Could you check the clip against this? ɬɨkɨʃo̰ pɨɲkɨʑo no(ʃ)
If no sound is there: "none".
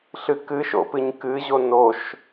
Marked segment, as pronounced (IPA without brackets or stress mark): ʃ